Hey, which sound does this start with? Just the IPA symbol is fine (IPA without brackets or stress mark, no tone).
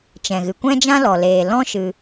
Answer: t͡ʃ